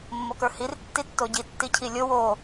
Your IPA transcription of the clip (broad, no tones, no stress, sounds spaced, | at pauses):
mː o k ə˞ h i r tː i tː o ɟ i tː i cʰ i lʲ o w o